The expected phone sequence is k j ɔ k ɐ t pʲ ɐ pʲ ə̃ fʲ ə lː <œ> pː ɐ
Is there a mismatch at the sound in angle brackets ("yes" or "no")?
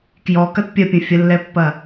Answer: yes